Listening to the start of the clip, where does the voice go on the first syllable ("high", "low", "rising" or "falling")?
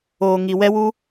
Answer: low